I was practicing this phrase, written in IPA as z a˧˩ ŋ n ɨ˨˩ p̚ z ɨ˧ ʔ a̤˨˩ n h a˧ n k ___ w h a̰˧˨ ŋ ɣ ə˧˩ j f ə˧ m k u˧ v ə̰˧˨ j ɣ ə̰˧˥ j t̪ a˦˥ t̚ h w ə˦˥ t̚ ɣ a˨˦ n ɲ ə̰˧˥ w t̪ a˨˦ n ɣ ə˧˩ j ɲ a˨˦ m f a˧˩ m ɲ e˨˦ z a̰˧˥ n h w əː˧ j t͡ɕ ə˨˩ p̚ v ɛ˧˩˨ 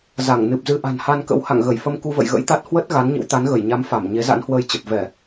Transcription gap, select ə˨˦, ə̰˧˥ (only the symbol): ə̰˧˥